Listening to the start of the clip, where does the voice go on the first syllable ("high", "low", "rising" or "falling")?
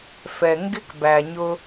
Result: low